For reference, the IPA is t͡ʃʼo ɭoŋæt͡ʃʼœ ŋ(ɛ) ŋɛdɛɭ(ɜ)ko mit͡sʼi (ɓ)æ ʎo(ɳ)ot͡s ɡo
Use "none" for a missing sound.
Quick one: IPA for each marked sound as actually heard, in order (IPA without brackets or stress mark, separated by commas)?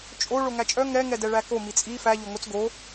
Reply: ɛ, æ, f, ŋ